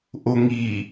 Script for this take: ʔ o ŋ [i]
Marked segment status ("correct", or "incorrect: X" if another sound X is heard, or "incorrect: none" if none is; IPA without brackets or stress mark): correct